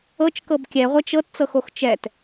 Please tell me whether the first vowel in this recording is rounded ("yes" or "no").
no